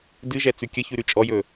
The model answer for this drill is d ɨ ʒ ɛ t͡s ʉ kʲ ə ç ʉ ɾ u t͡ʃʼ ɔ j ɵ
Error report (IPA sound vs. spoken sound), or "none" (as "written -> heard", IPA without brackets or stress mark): u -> ʉ